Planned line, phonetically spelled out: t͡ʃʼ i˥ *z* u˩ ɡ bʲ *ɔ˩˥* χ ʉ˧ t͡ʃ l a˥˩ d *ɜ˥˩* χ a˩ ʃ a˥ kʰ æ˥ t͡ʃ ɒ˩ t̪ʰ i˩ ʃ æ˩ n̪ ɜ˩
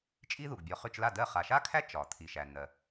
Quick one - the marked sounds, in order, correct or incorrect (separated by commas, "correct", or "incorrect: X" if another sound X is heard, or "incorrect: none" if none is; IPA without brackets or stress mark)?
incorrect: ð, correct, correct